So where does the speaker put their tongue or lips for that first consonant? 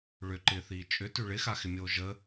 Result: retroflex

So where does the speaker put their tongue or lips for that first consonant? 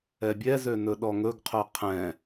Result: lips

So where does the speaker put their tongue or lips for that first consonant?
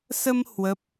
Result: tongue tip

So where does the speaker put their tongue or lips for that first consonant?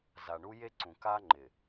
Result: tongue tip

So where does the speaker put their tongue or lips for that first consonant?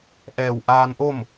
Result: throat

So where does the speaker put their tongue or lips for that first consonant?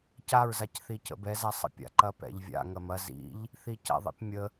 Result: palate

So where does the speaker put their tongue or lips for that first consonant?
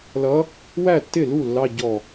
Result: tongue tip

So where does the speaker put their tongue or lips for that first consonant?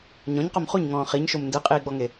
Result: palate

